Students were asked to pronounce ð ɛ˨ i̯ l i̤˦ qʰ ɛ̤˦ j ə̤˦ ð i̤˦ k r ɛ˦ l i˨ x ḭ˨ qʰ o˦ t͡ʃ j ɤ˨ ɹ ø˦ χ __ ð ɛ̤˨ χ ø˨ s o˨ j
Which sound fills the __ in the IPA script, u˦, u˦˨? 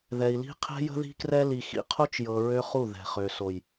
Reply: u˦˨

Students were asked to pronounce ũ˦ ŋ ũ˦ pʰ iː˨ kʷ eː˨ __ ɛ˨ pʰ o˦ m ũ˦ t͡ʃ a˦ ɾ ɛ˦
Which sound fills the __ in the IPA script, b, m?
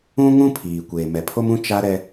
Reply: m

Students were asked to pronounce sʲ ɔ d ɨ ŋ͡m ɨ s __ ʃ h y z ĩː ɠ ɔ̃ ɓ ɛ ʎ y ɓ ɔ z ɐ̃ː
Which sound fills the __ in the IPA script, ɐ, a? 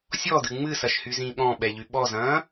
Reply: ɐ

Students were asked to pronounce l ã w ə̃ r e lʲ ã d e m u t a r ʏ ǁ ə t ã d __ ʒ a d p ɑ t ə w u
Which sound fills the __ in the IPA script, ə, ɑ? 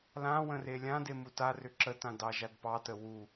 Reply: ɑ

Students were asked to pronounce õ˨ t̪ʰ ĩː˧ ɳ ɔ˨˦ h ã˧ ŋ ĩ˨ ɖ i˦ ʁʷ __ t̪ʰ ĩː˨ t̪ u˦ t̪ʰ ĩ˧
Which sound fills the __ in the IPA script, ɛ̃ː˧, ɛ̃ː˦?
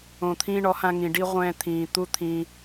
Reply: ɛ̃ː˧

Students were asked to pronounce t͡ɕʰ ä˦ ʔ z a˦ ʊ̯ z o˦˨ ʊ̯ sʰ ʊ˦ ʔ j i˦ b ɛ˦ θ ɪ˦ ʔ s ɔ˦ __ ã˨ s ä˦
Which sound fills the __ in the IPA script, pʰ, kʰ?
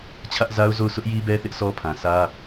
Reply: pʰ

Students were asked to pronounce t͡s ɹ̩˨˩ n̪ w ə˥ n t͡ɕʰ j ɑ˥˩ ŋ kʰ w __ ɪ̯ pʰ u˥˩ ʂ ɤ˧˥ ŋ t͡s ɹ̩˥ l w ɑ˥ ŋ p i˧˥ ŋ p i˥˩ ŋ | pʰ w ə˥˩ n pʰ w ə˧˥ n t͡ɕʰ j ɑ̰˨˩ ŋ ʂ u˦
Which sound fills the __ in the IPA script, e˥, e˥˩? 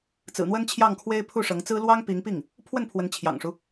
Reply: e˥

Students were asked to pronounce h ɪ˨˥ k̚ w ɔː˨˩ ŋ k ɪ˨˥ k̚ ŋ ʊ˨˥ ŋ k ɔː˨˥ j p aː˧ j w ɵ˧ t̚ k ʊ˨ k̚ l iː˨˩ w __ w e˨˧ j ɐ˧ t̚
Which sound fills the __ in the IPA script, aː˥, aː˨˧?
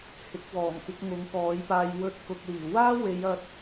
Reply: aː˥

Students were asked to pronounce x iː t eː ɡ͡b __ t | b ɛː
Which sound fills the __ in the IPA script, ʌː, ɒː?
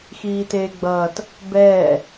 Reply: ʌː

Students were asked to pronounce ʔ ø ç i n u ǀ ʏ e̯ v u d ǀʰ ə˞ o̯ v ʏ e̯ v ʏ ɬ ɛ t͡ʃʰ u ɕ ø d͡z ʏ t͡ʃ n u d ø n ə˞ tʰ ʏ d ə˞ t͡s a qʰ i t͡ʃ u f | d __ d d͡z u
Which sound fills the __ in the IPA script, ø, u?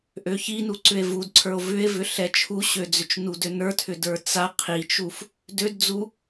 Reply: ø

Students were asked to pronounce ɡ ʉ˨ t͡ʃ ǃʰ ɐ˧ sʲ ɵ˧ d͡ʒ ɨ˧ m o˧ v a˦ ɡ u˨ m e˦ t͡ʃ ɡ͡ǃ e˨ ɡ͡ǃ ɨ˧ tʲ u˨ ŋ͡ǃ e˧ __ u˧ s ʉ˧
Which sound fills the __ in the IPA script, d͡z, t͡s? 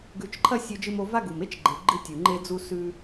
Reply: d͡z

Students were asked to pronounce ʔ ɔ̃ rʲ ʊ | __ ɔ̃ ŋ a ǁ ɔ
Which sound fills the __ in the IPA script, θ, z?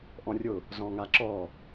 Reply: z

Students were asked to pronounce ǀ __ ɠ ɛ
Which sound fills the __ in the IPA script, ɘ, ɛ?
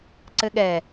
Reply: ɘ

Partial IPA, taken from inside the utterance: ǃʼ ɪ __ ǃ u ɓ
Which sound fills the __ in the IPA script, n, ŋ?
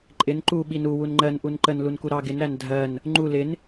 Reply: n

